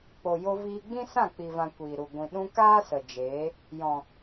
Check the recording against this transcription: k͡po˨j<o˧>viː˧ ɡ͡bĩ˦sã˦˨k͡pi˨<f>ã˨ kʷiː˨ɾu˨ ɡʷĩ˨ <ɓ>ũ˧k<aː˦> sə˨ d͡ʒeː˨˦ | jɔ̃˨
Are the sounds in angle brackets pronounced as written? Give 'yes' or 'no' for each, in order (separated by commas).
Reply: yes, no, no, yes